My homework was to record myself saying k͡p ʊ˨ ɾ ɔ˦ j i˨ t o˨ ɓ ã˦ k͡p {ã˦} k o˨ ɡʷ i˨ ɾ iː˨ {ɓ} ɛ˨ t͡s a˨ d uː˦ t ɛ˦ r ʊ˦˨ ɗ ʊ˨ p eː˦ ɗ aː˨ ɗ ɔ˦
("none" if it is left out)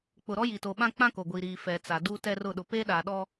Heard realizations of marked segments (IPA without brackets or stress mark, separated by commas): ã˦, f